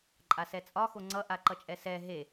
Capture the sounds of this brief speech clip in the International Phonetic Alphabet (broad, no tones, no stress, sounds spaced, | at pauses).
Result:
ǃʼ a s ɛ t͡sʼ ɒ x o ŋ͡ǀ ʌ ʔ a ǃ ʌ t͡ʃʼ ɛ s ɛ ɦ e